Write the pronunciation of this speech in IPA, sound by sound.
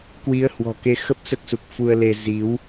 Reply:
k w i˨˦ ə̯ h w ɔ̤˨˩ k e˨˦ x ə˦˥ p̚ s ə˦˥ t̚ s u˨˩ k̚ f u˧ ə̯ l e˧ z i˨˦ w

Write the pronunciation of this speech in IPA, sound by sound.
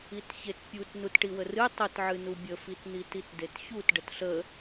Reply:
i t ç e t pʲ u t n u t ʈ i w ə r ɨ tˤ ə t ʕ ɨ n u bʲ ə f i t n̪ i t i t d e t ç u t ɖ ə t ɬ ə

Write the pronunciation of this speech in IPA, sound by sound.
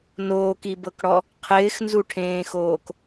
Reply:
n oː k i b ɤ k ɽ ɔ | qʰ ɪː x n z u ʈʰ ẽː x oː k

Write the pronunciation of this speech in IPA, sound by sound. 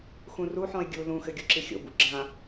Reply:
x ũ r u ħ ɔ̃ e̯ ɡʲ u l ũ x ɘ ɡʲ u ǁ i xʲ o̰ b ṵ ɡ͡ǁ ã

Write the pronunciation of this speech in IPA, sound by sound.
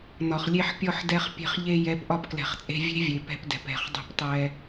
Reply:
n ɒ˨ χ lʲ e˧ ħ pʲ ɔ˧ ħ d ɛ˧ χ pʲ e̤˧ χ ʎ e˧ j ɛ˨˦ p ʔ ɒ˧ p k l ɛ̤˨ χ t͡sʼ e̤˧ vʲ e̤˦ vʲ e˨ p ɛ̤˧ p d ɛ̤˨ p ɛ̤˨ χ dˤ e̤˧ p tˤ ɛ˧

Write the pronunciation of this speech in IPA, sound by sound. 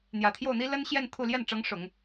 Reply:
n̪ j ä˨˩ t̪ʰ j o˥˩ ʊ̯ n̪ i˥ l ə˥ n ɕ j ɛ˥˧ n t̪ʰ u˥˧ l j ɛ˥˩ n ʈ͡ʂ ɤ˧˥ ŋ ʂ ʊ˨˩˦ ŋ

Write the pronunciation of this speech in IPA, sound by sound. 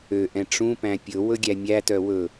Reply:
ø ʔ ɛ̃ ʈ͡ʂ ũ p æ̃ pʲ ɵ w ɵ ɡʲ æ mʲ æ t œ w ɵ

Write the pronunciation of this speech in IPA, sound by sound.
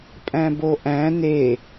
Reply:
pʼ æ̃ b o ʔ æ̃ n e

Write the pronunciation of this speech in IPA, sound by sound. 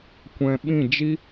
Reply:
kʷ ɛ̃˨ ɓ ĩ˦˨ d͡ʒ i˦

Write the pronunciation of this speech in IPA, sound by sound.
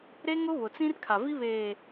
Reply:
ɾ e˦ ŋ ʊ˦ β ʊ˨ t͡s ĩ˦ r kʰ a˨ v i˦ β eː˨

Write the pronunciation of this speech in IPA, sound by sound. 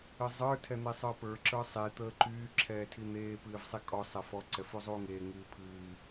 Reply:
ɨ zˤ ə˞ tʰ ɛ n̪ e sˤ ə˞ p ə˞ ǁ ə˞ sˤ i t̪ əː ǃ yː ǁʰ ɛː tʰ i n̪ eː p ɨː v sˤ e kʼ ɔ sˤ ɛ f ɔ ǀ ɛ f u zˤ uː ŋ eː ŋ ɨː pʰ ɨː

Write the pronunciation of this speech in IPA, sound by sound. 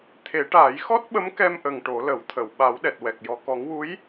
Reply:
t̪ʰ e˨˩˦ ʈ aː˨˩˦ j x ɔ˦˥ t̚ ɓ ə˧˥ m k ɛ˧ m ʔ ə˨˩ ŋ ʈ o˨˩˦ l ə˨˩˦ w t̪ʰ ə˨˩˨ w ɓ a˨˩˦ w ɗ ɛ˨˩ t̚ w ɛ˨˩ k̚ j ɔ˨˩ k ɔ˨˩˦ ŋ w u˧˥ j

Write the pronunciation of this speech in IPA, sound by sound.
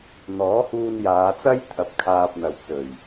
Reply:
n̪ ɔː˨˥ h uː˧ n j aː˨˧ t͡s ɐ˥ j t̪ʰ ɐ˧ p̚ kʰ aː˧ p̚ n̪ ɐ˨ w t͡s ɵ˨˩ ɥ

